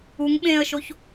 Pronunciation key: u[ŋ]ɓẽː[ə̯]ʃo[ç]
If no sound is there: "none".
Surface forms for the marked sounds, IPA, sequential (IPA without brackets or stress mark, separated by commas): ŋ, ə̯, ç